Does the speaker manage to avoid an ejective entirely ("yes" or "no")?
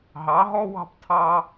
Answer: yes